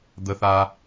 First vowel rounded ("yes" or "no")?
no